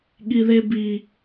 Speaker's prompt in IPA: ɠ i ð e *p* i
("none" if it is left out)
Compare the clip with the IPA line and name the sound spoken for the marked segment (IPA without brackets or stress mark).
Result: b